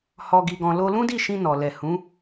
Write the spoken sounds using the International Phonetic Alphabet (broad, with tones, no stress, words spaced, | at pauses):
hɔ˧ɡi˧ɡɔ̃˧lo˦ lũ˦di˦˨ʃĩ˧ nɔ˨lɛ˨ hũ˨˦